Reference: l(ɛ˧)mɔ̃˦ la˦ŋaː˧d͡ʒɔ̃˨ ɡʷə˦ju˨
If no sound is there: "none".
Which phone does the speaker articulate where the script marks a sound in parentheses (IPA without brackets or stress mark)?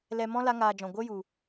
ɛ˧